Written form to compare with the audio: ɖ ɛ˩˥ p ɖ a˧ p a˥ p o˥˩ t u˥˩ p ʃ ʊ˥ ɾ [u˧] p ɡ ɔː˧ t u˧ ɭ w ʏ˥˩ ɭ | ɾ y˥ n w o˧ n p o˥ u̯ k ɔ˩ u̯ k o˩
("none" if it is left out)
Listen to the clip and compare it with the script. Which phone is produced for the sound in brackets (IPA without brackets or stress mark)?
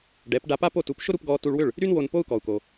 u˧